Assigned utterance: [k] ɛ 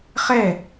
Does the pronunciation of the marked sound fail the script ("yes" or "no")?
yes